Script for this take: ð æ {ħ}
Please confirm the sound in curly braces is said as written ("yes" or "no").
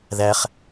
no